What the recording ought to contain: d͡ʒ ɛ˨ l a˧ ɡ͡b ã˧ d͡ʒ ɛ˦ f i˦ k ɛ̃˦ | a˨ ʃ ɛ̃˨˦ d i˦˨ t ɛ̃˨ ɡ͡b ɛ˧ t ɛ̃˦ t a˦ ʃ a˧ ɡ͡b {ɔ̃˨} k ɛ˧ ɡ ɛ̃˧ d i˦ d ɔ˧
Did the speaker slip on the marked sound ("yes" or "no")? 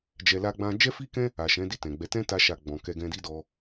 no